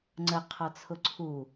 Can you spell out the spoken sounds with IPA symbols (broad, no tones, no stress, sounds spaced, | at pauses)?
ŋ͡ǀ ə qʰ ɔ t͡sʰ ʊ ǀʰ u